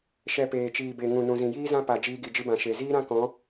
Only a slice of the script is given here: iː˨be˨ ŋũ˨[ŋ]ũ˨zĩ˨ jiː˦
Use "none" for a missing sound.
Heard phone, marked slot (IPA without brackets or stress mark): n